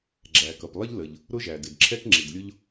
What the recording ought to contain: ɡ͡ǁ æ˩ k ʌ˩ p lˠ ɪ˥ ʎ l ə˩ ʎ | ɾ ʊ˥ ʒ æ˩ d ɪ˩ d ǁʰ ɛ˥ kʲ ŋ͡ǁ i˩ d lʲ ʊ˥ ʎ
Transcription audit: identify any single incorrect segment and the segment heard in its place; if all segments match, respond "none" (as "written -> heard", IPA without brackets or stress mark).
kʲ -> k